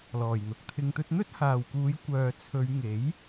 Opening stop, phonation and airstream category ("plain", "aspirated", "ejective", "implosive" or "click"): plain